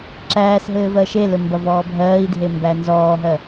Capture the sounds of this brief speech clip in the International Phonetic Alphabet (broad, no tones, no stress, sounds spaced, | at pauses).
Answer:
ǁ æː s ɦ ɘː v ɜ ʃ e l ɘ m b ɐ v ɔː bʱ ɜː i̯ dʱ e m b æ n z ɔː ɦ ɜ